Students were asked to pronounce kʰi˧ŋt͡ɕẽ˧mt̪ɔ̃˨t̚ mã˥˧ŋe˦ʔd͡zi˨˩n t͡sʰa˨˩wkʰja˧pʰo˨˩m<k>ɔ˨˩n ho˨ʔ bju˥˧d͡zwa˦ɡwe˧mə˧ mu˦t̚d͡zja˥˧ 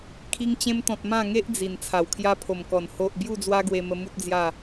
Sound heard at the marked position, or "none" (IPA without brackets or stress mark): k